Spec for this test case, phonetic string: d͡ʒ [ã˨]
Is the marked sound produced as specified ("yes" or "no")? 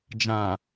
yes